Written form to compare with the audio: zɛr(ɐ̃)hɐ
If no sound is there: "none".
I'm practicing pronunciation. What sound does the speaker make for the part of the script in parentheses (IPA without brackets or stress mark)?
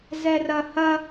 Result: ɐ